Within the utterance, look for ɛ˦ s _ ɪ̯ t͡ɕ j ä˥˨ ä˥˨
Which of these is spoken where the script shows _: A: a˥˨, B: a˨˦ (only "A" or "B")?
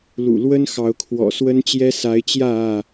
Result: B